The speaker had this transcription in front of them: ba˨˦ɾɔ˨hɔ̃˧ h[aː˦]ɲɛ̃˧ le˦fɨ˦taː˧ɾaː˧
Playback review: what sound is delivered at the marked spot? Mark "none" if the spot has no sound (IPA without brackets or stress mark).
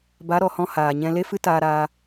aː˨